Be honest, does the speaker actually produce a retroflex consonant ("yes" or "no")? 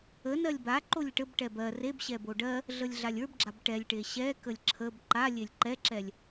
yes